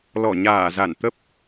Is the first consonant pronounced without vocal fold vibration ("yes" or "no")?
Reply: no